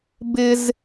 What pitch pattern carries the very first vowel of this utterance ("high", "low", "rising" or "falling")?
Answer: high